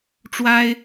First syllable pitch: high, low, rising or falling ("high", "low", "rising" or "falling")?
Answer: high